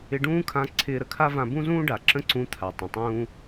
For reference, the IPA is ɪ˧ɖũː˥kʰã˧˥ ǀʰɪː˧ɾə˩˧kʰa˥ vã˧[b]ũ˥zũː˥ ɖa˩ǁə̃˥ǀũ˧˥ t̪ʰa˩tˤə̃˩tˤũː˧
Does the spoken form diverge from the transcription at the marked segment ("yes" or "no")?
no